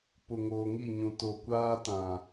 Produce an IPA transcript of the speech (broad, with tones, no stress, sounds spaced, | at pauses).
p ʊ˨ ŋ oː˨ ŋ i˦˨ ɲ ũ˨ t o˨ kʷ aː˦ t ã˨